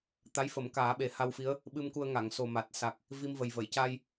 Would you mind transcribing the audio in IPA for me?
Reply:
t̪ a˧˥ j f ə˨˩˦ m k aː˨˩˦ ɓ e˨˩˦ h a˧ w f i˧˥ ə̯ | ɓ ɨ˧ m k u˧ ə̯ ŋ a˨˩˨ ŋ s o˨˩ m a˨˩ t̚ s a˨˩ k̚ | v i˧ m v ə˨˩ j v ə˨˩˨ j c a˧ j

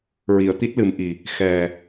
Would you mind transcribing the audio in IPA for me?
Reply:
ɹ i˨˩˨ ə̯ t̪ i˦˥ t̚ l ɨ˨˩˦ m ʔ i˨˩ | x ɛ˨˩

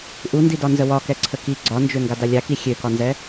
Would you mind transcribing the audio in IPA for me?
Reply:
ʔ u n d i d ɒ n z ə w ɒ k ɛ ǀʰ ə k i ɡ͡ǀ ɒ n d͡ʒ ø ŋ ɡ a d a lʲ a k i xʲ ø k ɒ n z ɛ

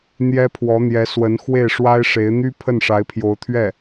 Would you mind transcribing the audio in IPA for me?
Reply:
n̪ j ɛ˥ pʰ w ɔ˧˥ n̪ j ɛ˧˥ s w ə˧˥ n x w e˥˩ ɪ̯ ʂ w a˥ ɪ̯ ʂ e˧˥ ɪ̯ n̪ y˥ pʰ ə˥˩ n ʂ a˧˥ ɪ̯ pʰ j o˧˥ ʊ̯ t̪ʰ ɥ ɛ˥˩

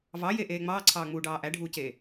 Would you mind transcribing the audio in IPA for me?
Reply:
v ɑ j e ʔ eː ŋ͡m ɑː ǀʰ ɑː ŋ͡m uː ɖ ɑː ʔ æ ɖʱ uː c eː

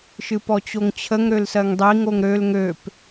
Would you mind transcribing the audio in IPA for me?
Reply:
ʃ ɨ p ɔ t͡ɕ o ŋ t͡ɕʰ ə ŋ ɾ ø l s ɜ ŋ dˤ i ŋ o ŋ ɾ ø l ŋ ø p

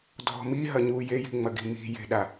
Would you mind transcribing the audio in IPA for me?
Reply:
dʱ ɔ̤ m i ɦ ɐ ɲ u j e j i̤ ŋ͡m ɐ ɡ i̤ m i̤ j e̤ ɗ a

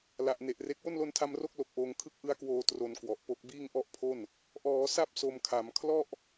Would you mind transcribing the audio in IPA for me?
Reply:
l a˨˩ ʔ n e˨˩ ʔ r e˦˥ k̚ w o˥˩ n l o˧ n tʰ a˧ m r o˥˩ k̚ l o˨˩ k̚ ʔ oː˧ ŋ kʰ ɯ˥˩ k̚ ʔ ɯ˦˥ a̯ k w oː˧ t r o˧ n k w ɔ˨˩ ʔ p o˥˩ k̚ b iː˥˩ ŋ ʔ ɔ˥˩ ʔ pʰ o˥˩ n | ʔ ɔː˩˦ s a˥˩ p̚ s o˧ m kʰ a˩˦ m kʰ l ɔ˥˩ ʔ

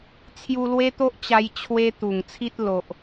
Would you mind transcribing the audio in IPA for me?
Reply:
t͡sʰ j u˧ l w e˦ t̪ o˦ ʔ t͡ɕ a˧ j t͡ɕʰ w e˦ t̪ u˨˩ ŋ t͡sʰ i˦ t̚ l o˨ ʔ

